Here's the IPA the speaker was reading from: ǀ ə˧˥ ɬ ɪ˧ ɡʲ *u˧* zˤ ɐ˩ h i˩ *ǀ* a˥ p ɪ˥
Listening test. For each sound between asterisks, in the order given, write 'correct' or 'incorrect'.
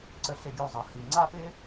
correct, incorrect

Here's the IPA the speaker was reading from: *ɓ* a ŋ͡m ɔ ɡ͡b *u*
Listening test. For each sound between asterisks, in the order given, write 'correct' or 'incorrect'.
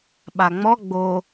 correct, incorrect

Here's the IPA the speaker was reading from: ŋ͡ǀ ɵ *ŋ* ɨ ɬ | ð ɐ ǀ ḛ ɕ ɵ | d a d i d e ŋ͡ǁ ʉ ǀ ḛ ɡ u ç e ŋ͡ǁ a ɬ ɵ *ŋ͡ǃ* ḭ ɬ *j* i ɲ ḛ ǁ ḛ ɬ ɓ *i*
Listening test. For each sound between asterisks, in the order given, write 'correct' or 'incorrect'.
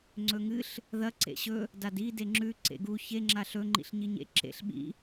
correct, correct, incorrect, incorrect

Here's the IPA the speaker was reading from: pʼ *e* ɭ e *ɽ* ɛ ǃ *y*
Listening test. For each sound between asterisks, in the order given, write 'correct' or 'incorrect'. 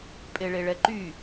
correct, incorrect, correct

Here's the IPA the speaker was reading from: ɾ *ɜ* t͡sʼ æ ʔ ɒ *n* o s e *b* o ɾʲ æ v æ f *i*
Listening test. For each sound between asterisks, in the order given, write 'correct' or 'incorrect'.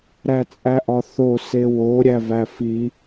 incorrect, incorrect, incorrect, correct

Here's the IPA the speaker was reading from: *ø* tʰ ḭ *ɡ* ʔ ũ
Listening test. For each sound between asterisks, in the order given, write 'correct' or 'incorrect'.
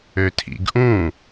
correct, correct

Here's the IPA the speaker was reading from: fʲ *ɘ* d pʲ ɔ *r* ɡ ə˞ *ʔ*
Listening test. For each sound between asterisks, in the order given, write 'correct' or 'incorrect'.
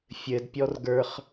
correct, correct, incorrect

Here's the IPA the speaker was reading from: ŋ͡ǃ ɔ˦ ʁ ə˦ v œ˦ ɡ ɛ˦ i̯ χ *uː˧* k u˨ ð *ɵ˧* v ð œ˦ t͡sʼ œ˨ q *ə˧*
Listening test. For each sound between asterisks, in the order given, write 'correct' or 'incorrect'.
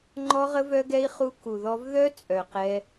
incorrect, incorrect, incorrect

